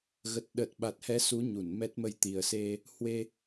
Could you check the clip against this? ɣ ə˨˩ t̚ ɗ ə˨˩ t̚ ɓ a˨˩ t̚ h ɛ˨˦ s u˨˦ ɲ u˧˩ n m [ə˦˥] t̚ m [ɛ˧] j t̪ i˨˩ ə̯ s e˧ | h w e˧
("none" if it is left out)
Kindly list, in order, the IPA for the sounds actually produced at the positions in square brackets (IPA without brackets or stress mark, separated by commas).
ɛ˦˥, ə˧